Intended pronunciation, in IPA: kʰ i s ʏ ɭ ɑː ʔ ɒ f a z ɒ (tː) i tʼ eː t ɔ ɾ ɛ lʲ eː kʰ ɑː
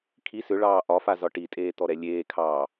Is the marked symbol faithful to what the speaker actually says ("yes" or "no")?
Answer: no